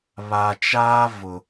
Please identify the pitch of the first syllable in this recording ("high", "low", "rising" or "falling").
low